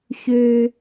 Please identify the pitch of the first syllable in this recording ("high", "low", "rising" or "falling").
low